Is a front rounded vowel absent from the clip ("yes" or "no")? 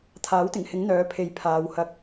no